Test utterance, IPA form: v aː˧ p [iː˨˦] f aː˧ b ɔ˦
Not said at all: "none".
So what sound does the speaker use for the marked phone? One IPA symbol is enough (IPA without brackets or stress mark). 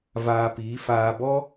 iː˨˦